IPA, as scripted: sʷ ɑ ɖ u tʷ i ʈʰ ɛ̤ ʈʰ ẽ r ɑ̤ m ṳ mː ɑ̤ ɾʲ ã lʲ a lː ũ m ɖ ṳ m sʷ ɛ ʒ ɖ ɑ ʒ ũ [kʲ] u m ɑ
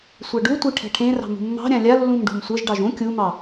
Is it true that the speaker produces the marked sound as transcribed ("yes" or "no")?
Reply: yes